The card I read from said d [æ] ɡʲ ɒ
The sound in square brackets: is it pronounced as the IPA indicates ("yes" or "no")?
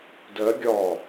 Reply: no